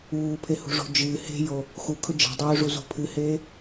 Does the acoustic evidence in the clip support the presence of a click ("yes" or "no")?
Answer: no